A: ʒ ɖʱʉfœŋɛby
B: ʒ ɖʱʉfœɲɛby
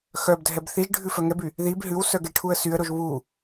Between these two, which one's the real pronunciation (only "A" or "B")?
A